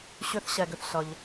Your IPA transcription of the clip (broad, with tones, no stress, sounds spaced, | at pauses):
ɕ ʏ˧ θ ɕ ɛ˩ ɡ ʏ˩ θ ɬ ʌ˩ ʎ